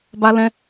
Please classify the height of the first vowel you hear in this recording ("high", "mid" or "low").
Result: low